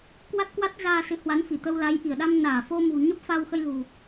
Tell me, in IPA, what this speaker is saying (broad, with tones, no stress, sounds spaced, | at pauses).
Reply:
k w a˦˥ t̚ k w a˦˥ t̚ z aː˧ s ɨ˨˦ h w a˨˦ n f i˧˩ t̪ ə˧ w l a˨˦ j ʔ i˧˩ ə̯ ɗ a˧ m n aː˧˩ f o˧ m ṳ˨˩ ɲ ə˦˥ p̚ f a˧ w x ə˧ j l ṳ˨˩